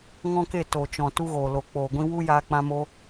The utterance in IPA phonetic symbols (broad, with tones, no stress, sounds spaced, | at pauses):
ŋ ɔ̃˦ k e˦˨ t o˨ t͡ʃ ɔ̃˨ t u˦ ɣ oː˨ l o˨ k͡p oː˨ ɡʷ ĩ˦ w u˦ j aː˧ k͡p ã˧ m o˧